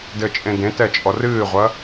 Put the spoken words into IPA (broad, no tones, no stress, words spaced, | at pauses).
dɘːt͡ʃʼẽdẽtɛ t͡ʃʼɔrɨːʁʷɐ